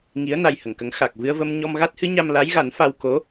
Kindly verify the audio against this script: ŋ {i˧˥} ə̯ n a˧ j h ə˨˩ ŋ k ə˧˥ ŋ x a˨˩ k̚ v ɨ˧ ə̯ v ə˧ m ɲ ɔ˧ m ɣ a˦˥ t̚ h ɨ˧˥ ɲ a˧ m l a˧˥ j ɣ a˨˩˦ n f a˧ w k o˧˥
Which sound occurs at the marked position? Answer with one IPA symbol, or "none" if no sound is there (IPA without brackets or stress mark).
i˧˥